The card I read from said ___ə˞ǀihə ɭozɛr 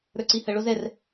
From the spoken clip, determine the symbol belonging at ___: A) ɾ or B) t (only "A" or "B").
A